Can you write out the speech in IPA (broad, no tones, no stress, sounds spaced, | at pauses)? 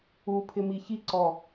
u pʰ ɪ m i ç i ǀ ɔ